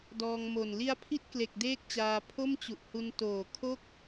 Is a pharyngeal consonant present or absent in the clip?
absent